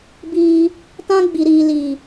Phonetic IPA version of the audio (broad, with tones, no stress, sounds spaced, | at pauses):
b iː˧ | t ã˦ ɡ͡b i˧ ɾ iː˧ l iː˨